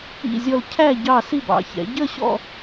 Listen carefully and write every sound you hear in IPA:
ḭ˥˧ zʲ ɔ˥˧ l cʰ æ˥˧ ɟ ɑ˥˧ s i˥˧ b ɑ̰˨˦ ç ɛ̰˨˦ ɟ ə˥˧ ɕ ɔ̰˥˧

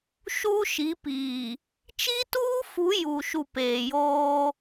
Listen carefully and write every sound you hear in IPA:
ʃ uː˦ ʃ i˨˦ p iː˨ | t͡ʃ i˦ t uː˦ f u˨˦ j u˨ ʃ u˨ p eː˨ j oː˦

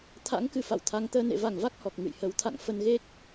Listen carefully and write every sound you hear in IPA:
t̪ʰ a̰˧˥ ŋ k ɨ˧˩ f a̰˧˨ w t̪ʰ a˨˦ ŋ t̪ əː˧ n ḛ˧˨ v a˧˩ ŋ v a˦˥ k̚ h ɔ˨˩ k̚ ŋ ɨ̰˧˨ j h ə˨˦ w t̪ʰ a̰˧˨ ŋ f ə˧ n ɣ e˦˥ k̚

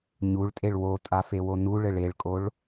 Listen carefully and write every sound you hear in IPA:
ɲ u ɭ tʼ e ɭ w o tʼ a f e w o n u ɭ ɘ ɭ e ɭ kʼ o ɭ

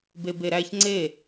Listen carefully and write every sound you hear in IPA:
b e b e ɾ æ ç ŋ͡ǀ e

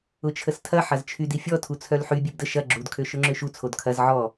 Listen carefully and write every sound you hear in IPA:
ʊ t͡ʃʰ ə s tʰ ɐ ħ ɐ z t͡ʃʰ y d i fʲ ɔ tʰ u t͡sʰ œ l ħ y bʲ ø b d ə ʃ ɐ ɡ͡ǁ u d kʰ ø ʃ ʊ ŋ͡ǁ ø ʃ u t͡sʰ o d kʰ ɐ z ʕ ɔ

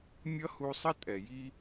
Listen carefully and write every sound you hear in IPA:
mʲ ʌ˦ h u˧ sˤ ə˦ tʼ ɛ˨ j i˦

